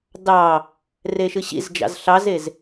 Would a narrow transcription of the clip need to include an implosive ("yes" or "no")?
no